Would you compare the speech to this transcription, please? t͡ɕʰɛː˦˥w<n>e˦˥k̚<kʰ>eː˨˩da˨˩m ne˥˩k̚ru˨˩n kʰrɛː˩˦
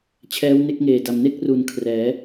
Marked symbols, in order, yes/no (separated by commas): yes, no